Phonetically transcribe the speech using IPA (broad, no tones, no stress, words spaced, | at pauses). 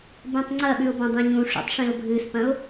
bẽtˤŋ͡ǀɐɓʉʊ̯ bɐ̃dˤẽɲũʂṵtˤ ʂĩʊ̯bʱɨspɐ̃ʊ̯